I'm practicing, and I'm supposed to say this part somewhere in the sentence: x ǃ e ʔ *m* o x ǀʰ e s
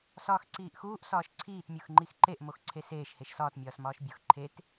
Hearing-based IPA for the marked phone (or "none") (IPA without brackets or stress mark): m